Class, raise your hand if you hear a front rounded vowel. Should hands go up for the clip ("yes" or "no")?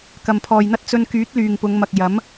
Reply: yes